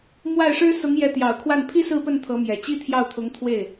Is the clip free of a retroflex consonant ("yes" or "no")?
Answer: no